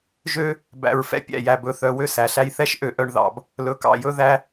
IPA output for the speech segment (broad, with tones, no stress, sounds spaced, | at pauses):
ʒ ø˦ | b æ̰˨ ɹ f ɛ̰˨ pʲ æ̰˦˨ j æ˨ b ɵ˨ θ œ˨ w ø˦ s æ˨ ɬ æ˦ j θ ɛ˦ ʃ ʔ ø˨ ʔ œ˨ ɳ ð ɑ̰˨ b | l ɵ˨ k ɑ̰˨ j ɵ˦ ð æ˦